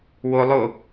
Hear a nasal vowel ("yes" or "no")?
no